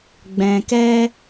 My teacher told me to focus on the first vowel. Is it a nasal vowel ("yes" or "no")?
yes